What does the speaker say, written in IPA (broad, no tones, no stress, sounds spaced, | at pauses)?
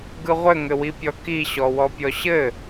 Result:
ɡ ɯ ʁʷ ɘ ŋ ɘ w i pʲ ɔ k i ɕ ɔ w ɔ pʲ ɔ ɕ ɘ